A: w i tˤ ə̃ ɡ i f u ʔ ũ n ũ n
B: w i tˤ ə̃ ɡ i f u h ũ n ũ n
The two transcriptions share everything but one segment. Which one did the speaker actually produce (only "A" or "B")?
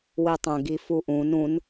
A